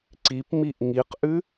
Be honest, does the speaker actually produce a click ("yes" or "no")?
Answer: yes